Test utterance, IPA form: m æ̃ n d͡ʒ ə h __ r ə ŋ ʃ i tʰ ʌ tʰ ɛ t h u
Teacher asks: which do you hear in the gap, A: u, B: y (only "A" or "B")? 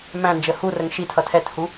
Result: A